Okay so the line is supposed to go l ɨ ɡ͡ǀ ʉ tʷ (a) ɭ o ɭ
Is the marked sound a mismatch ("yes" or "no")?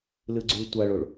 no